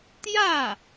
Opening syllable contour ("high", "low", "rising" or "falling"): falling